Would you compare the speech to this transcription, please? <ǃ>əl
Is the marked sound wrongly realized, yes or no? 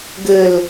yes